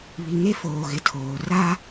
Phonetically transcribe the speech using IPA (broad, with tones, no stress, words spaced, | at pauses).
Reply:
βi˨ŋe˦foː˨ ɣɪ˨tʰoː˨ raː˦